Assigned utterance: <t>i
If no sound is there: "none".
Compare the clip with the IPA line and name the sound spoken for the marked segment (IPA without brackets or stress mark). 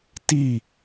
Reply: t